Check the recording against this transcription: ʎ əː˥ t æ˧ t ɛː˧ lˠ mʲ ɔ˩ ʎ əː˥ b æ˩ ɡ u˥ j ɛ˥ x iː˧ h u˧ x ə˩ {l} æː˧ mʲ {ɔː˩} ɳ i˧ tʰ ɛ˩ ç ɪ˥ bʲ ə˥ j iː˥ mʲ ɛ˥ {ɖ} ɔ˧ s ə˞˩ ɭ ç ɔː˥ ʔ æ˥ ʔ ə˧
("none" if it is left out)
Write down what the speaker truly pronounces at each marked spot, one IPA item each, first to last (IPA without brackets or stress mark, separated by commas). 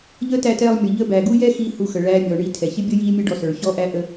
ɭ, ɔː˩, ɖ